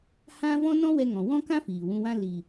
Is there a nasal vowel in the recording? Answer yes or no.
yes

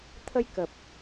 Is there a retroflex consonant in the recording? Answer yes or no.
no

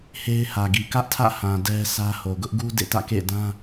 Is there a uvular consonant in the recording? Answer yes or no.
no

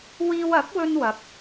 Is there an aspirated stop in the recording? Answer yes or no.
no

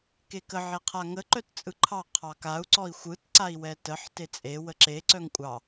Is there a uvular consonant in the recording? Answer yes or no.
yes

